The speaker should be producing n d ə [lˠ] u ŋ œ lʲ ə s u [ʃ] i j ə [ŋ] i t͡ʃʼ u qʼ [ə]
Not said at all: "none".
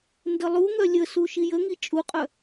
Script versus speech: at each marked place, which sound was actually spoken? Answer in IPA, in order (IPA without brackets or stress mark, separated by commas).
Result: lˠ, ʃ, ŋ, œ